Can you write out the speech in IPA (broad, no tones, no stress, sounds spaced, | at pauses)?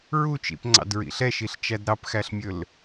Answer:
ɹ u t͡ʃ ḭ p ŋ͡ǀ ɑ̰ d ɹ ḭ ɬ ɛ ʃ i ɬ t͡ʃ æ d ɾ ɑ p x æ ɬ mʲ ɵ l